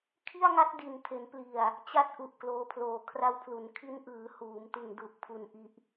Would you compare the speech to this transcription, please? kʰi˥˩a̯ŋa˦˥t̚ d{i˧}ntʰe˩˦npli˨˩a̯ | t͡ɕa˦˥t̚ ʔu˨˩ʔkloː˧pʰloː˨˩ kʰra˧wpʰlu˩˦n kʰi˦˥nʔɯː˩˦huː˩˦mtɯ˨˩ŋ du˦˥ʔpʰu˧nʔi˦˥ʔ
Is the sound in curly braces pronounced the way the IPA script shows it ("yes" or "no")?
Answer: no